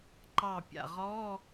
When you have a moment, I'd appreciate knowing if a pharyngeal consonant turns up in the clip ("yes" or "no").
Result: no